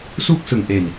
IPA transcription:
su˥˩k̚sɯ˨˩ŋʔe˨˩n

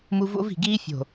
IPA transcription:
mu˦ vo̰˦vi̤˨ɡiː˦ fʲo̤˨

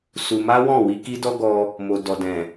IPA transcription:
su˧ ma˦wɔ̃˦˨ wi˧ ki˦dɔ˦ ɡɔ˦ | mo˨ dɔ˨dɛ̃˨

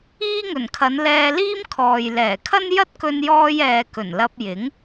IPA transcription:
iː˥ŋɵ˨˩nkʰɐ˨˧n lɛː˧liː˥m kʰɔː˨j lɛː˨˩kʰɐ˥n jɐ˥t̚kɵ˧njɔː˧j ɛː˨kɵ˨˩n lɐ˧p̚jɪ˨˥ŋ

